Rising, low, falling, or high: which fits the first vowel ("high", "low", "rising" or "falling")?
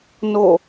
falling